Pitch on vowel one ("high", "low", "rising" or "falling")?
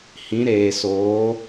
rising